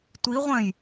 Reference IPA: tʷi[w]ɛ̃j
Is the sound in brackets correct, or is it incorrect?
incorrect